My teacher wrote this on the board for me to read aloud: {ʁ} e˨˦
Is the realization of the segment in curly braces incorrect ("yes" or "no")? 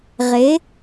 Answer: no